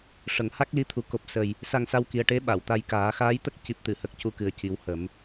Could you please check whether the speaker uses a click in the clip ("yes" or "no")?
no